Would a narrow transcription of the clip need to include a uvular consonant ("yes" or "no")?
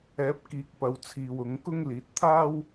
no